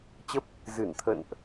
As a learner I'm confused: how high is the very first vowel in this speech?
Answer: mid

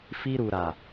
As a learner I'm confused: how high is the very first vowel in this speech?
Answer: high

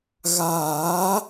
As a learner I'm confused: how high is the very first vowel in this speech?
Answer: low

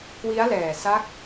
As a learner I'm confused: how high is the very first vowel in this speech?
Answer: high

